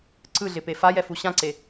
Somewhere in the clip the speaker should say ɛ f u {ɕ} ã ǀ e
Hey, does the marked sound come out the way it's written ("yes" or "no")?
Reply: yes